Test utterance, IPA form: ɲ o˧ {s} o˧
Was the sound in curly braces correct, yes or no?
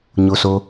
yes